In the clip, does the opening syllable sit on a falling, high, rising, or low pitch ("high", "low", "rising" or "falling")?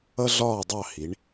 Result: high